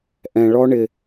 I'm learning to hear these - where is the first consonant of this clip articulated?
throat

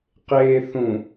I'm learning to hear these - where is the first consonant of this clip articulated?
uvula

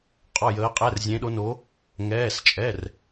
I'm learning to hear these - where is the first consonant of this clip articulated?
uvula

